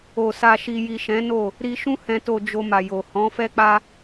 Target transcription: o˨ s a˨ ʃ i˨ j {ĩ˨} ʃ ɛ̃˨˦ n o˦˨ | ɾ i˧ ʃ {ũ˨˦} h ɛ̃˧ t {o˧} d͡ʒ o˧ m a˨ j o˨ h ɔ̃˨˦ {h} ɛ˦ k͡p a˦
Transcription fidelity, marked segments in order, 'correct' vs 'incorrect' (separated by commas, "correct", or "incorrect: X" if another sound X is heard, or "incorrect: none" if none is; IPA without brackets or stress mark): incorrect: i˨, incorrect: ũ˦, correct, incorrect: f